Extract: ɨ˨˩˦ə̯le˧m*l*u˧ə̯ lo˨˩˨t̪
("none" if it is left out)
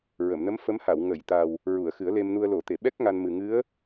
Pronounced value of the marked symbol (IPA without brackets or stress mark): n